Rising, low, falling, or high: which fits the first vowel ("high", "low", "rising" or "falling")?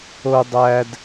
high